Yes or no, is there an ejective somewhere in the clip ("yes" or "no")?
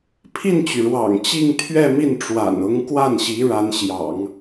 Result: no